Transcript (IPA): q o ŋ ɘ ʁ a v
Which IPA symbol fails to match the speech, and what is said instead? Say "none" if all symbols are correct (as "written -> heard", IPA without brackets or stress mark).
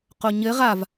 ŋ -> ɲ